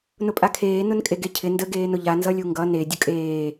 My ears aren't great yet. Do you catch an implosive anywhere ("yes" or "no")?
no